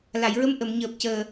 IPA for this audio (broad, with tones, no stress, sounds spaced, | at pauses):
l a˨˩˨ j ɹ ə˧˥ m ʔ ə˨˩˨ m ɲ əː˨˩ p̚ c əː˨˩